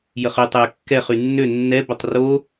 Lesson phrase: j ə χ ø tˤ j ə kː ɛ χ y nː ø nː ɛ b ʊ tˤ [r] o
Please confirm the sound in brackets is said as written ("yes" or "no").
yes